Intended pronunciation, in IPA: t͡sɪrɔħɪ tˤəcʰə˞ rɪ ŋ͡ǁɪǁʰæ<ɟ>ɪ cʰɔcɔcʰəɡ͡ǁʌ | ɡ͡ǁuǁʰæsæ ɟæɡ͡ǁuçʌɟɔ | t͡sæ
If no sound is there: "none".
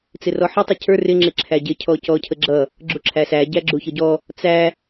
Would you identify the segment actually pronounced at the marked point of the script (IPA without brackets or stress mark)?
ɟ